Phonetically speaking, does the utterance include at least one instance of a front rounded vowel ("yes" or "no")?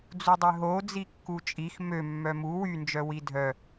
yes